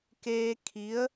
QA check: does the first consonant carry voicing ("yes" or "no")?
no